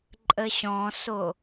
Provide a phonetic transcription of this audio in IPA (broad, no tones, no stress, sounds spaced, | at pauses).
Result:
ǃʼ ə ɕ ɔ̃ s o